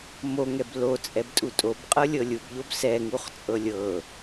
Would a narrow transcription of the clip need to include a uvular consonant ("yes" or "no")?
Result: yes